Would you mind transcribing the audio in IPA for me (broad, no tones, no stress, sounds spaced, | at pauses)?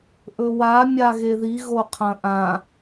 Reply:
ʔ ɵ w a mʲ a ɣ e ð i ɣ o qʰ ɐ̃ ʔ ã